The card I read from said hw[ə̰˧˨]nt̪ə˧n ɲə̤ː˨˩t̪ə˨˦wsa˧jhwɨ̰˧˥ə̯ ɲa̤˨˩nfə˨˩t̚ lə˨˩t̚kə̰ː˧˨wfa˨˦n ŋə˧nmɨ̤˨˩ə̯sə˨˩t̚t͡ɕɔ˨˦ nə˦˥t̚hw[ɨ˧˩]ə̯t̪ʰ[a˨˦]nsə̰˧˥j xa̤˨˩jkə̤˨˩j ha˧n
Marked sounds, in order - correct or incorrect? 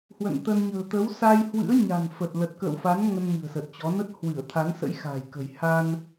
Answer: correct, correct, correct

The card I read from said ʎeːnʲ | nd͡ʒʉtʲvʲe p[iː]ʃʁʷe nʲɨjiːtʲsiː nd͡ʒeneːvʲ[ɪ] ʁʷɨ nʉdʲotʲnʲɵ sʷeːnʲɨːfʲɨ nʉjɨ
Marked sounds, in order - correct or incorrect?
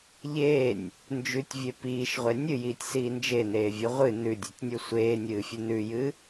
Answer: correct, incorrect: ɨ

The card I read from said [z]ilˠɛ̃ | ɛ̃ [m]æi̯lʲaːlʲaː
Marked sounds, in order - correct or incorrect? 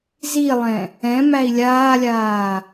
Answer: correct, correct

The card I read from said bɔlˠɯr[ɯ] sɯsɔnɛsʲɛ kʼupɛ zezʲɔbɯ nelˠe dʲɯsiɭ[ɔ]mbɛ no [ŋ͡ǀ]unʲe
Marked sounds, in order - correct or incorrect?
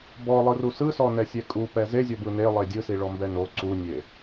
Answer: incorrect: u, correct, incorrect: ǀ

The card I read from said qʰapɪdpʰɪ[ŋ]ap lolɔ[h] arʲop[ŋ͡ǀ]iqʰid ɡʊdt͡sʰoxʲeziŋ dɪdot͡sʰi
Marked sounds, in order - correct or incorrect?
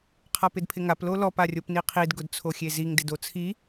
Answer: correct, incorrect: p, incorrect: n

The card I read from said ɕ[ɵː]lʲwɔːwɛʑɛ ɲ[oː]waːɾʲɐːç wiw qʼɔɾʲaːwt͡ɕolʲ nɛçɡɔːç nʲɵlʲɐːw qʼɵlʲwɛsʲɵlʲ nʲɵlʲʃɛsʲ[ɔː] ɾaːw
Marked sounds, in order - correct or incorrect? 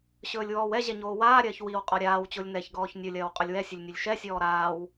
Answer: correct, correct, correct

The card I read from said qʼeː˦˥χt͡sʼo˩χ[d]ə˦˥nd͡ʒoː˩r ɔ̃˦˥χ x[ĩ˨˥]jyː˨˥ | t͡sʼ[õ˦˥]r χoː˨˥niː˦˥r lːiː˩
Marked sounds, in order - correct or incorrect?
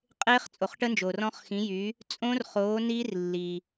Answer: incorrect: ʈ, correct, correct

